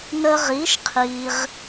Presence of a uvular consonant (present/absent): present